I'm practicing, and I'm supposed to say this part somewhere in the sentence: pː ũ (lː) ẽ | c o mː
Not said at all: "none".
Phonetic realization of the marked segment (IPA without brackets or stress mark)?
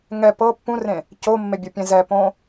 r